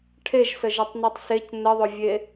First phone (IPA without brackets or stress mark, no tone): ʈʰ